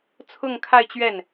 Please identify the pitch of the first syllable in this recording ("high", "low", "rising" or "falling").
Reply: falling